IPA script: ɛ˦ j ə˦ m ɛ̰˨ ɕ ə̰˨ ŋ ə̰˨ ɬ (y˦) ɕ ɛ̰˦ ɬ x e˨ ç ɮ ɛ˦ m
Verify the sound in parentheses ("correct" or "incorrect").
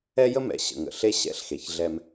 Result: incorrect